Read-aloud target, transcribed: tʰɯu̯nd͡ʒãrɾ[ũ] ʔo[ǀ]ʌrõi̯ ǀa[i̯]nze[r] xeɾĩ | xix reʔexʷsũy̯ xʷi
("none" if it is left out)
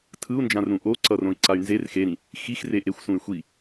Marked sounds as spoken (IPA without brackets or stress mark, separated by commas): ũ, ǀ, y̯, r